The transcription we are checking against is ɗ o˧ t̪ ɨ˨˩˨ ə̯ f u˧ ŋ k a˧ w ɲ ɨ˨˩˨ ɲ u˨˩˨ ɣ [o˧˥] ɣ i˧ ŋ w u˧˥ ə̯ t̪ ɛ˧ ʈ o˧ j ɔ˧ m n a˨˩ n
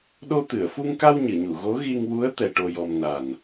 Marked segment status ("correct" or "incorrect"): correct